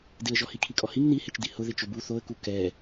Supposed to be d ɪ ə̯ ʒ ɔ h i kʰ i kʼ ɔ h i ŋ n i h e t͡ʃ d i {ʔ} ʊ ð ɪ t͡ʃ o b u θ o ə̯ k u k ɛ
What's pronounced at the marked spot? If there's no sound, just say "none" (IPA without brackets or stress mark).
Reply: h